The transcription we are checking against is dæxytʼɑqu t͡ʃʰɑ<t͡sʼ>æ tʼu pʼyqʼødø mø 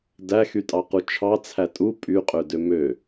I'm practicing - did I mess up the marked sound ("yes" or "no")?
yes